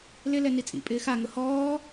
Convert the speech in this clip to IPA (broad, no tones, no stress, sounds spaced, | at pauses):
l ɪ l ɛ n i t͡sʼ ḭ pʼ ɪː x a ŋ ʊ h ɔː